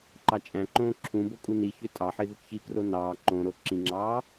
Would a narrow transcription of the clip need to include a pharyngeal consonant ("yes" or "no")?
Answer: yes